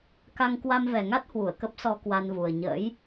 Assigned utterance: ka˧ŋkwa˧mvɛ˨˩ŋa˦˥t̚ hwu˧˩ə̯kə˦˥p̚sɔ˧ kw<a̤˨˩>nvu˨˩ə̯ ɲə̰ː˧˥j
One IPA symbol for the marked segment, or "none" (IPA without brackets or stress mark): a˧